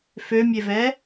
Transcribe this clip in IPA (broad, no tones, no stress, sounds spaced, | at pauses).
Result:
f ø mʲ e v ɛ